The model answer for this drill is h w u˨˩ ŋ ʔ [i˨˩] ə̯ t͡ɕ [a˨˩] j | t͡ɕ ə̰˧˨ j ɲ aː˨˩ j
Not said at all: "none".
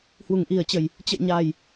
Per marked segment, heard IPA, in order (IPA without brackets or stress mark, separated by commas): i˨˩, ə˨˩